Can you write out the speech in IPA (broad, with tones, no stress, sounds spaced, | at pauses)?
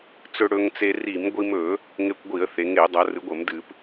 t͡s ɵ˧ ɽ ɵ˧ ŋ t͡s e˧ r i˧˩˧ m ɡʷ i˧ m ɵ˧˩˧ | ŋ e˧ kʷ ɡʷ i˧˩˧ ə̯ θ e˩˧ ŋ e˧˩˧ dˤ ɐ˩˧ r ɨ˩˧ ɡʷ ɐ˧˩˧ m d ɨ˧˩˧ p